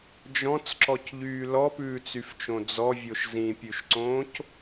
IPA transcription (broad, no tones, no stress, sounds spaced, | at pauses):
d͡ʒ ɔ̃ t͡s ǁ ɔ c ʎ yː l ɔ p ʉː t͡s y f t͡ʃ õ d͡z ɔ vʲ o ʃ z ĩ pʲ ʉ ʃ ǀ õː c